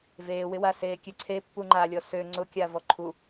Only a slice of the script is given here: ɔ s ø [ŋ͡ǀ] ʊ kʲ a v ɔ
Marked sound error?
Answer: no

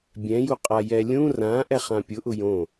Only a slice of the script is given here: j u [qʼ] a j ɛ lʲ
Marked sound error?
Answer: no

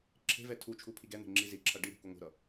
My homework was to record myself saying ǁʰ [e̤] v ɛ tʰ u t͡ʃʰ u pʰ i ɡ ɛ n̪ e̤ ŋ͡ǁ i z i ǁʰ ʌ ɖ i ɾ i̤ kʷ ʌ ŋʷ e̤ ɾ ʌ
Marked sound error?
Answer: no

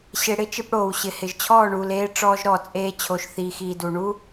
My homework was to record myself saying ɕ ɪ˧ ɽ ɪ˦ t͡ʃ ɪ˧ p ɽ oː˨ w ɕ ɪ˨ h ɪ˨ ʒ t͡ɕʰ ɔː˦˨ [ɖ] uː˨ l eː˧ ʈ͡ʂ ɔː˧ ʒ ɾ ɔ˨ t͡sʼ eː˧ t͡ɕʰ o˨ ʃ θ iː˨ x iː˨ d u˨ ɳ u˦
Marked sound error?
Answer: yes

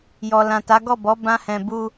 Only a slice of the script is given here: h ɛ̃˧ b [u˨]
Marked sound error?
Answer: yes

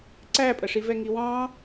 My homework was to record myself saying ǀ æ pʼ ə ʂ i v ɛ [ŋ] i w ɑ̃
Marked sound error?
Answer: no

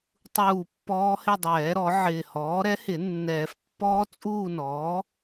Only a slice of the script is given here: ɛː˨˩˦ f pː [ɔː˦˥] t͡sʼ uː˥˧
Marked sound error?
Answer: no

